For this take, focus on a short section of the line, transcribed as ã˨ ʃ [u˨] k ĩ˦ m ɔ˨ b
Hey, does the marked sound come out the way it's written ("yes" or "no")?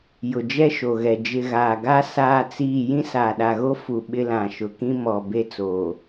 no